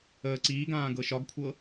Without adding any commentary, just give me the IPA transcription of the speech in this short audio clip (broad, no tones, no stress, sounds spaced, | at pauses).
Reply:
əː ǀ iː ɡ ãː ɡ ɤ ʃ ɒ ɡ kʷʰ ɤ